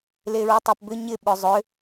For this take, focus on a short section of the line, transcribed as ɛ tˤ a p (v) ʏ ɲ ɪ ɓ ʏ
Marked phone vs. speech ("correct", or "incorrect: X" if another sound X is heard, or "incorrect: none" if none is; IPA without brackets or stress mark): incorrect: b